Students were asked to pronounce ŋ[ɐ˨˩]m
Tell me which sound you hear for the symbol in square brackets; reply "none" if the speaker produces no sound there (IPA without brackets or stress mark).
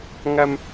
ɐ˧